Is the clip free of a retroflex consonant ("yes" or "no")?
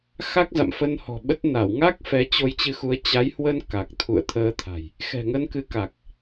yes